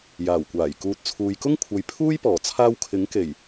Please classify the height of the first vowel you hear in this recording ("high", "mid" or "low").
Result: low